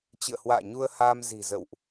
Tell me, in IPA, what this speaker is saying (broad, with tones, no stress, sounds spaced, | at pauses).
t͡ɕ ɨ̰˧˨ ə̯ h w a̰ː˧˨ ɲ u˧ ə̯ h aː˧ m z i̤˨˩ z ə̰˧˨ w ʔ